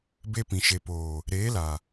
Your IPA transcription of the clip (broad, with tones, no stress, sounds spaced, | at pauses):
b e˧ p ĩ˨ ʃ e˨ p oː˨ | ɾ eː˨˦ l a˨